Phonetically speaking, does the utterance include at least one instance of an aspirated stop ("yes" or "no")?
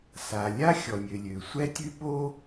no